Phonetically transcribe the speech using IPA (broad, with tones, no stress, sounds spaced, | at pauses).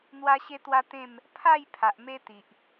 n̪ w a˦ ɕ e˦ t̪ w a˦ t̪ ẽ˥˧ m | pʰ a˥˧ j pʰ a˨ ʔ m e˦ t̪ i˨ ʔ